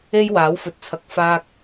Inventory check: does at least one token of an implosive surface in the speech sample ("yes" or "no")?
no